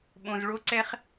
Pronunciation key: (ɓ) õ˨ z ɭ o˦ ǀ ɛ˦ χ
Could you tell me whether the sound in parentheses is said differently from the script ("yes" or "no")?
no